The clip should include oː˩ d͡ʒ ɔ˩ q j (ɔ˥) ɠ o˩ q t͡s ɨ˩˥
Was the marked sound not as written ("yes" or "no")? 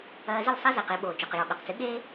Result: yes